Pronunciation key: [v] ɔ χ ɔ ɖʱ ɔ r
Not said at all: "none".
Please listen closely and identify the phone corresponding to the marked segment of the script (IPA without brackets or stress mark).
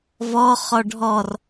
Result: v